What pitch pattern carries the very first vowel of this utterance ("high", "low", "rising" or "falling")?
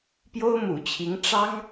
high